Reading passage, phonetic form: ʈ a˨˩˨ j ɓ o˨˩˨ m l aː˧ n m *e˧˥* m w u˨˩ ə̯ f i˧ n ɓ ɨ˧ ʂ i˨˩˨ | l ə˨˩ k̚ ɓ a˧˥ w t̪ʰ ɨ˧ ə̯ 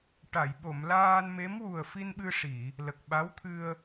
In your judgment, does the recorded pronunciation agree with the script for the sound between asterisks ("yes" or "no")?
yes